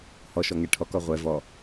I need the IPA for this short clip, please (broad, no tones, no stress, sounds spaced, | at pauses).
h ɔ ʃ ɔ ŋ ɛ ʈʰ ɔ k ɔ ʁʷ ɛ v ɔ